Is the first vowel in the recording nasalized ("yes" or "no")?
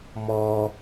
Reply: no